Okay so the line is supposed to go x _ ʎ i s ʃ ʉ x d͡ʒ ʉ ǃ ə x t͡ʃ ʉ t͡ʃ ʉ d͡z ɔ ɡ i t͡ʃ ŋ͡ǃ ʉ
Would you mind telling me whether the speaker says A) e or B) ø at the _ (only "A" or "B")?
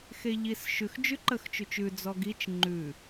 A